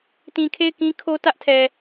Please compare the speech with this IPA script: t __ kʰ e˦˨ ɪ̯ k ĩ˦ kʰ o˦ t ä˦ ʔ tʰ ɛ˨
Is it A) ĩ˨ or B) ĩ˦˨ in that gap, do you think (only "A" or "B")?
A